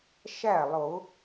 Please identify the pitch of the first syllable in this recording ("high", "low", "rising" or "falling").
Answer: falling